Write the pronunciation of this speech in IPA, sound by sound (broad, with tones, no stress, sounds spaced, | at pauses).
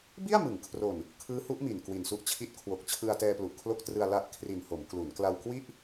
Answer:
b i˥˩ a̯ m ɯ˩˦ ŋ kʰ r o˨˩ n | kʰ ɯː˦˥ h u˦˥ ʔ m i˨˩ n k w i˨˩ n s u˦˥ ʔ t͡ɕʰ i˥˩ t̚ kʰ w o˨˩ k̚ t͡ɕʰ ɯ˧ a̯ t ɛː˧ p l u˨˩ ʔ kʰ l o˦˥ k̚ t r ɯ˧ a̯ l a˦˥ ʔ kʰ r i˨˩ n h o˩˦ m k l u˩˦ n k l a˧ w k w i˥˩ ʔ